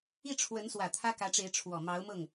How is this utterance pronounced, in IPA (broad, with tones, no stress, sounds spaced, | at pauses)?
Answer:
i˥˩ ʈ͡ʂʰ w ə˧˥ n s w ä˨˩ t̪ʰ ä˥ k ä˧˥ ʈ͡ʂ e˧˥ ɪ̯ ʈ͡ʂʰ w ɔ˨˩ m ɑ˧˥ ʊ̯ m ɤ˥˩ ŋ